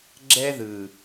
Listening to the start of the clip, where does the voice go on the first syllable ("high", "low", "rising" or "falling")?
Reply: high